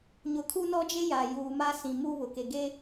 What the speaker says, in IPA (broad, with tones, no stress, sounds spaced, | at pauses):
ɲ ʊ˨ kʰ u˦ n ɔ˦ d͡ʒ e˦ j a˨ j uː˨ m a˦ s ĩ˨ m u˦ β ʊ˨ k e˨ ɡ e˦